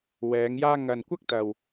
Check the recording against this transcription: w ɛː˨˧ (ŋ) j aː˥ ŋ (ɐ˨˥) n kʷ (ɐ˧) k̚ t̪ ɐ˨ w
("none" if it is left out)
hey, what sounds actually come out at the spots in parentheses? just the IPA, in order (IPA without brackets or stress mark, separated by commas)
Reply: ŋ, ɐ˨, ɐ˥